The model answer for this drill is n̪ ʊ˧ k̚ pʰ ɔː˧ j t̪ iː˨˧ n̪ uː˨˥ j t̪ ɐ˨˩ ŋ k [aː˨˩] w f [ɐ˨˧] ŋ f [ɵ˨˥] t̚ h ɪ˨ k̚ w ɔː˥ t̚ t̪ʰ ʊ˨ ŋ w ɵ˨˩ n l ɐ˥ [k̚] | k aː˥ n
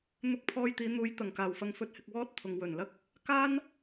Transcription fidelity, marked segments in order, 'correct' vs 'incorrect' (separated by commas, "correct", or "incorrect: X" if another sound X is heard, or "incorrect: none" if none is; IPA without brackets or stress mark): correct, correct, correct, correct